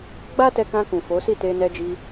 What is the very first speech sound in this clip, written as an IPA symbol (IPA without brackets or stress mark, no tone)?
ɡ͡b